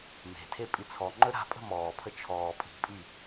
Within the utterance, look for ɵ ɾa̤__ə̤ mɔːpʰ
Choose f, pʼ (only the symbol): pʼ